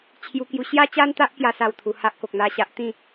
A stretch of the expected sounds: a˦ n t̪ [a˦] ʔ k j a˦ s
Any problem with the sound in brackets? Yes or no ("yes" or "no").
no